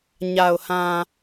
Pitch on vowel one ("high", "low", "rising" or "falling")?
low